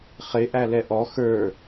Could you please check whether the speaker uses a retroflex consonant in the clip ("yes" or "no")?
no